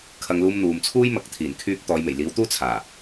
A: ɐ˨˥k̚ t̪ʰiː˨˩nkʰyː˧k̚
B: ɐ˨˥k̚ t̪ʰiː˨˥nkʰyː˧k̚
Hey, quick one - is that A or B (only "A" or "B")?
A